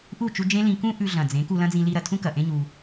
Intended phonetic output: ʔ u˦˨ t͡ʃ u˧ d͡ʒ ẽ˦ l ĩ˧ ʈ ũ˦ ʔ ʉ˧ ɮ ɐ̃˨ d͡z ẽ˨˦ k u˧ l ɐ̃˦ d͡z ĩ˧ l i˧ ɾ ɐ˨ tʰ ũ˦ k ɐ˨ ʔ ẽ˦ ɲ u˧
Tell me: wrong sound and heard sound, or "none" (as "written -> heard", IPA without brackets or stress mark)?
ʈ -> k